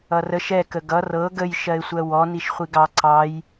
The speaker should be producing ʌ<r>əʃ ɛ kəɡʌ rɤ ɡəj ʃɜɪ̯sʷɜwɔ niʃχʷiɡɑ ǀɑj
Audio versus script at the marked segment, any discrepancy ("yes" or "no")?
no